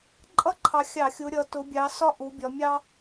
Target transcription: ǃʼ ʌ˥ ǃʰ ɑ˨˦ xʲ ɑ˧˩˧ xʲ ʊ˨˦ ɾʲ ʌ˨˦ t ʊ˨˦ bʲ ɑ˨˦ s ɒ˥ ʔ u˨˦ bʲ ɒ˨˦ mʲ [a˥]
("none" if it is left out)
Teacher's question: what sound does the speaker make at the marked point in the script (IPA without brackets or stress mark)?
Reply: ɑ˥